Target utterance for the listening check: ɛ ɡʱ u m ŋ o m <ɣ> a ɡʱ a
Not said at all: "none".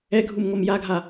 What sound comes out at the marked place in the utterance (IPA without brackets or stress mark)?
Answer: j